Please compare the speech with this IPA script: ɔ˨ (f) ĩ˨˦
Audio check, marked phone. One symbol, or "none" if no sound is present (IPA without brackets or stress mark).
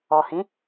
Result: h